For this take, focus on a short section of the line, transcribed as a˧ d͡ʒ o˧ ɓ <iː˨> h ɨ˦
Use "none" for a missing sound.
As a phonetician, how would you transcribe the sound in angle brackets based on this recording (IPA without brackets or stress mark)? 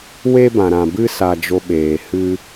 eː˨